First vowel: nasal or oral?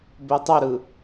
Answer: oral